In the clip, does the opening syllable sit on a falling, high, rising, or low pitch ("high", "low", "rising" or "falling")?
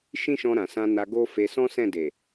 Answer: high